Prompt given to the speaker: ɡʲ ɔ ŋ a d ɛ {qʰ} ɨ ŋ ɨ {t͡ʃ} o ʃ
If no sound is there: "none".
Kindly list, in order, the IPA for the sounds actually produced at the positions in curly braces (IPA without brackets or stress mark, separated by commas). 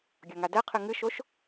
qʰ, ʃ